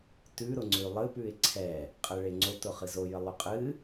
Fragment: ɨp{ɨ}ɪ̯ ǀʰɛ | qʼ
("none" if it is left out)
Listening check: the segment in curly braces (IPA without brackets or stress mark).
ʉ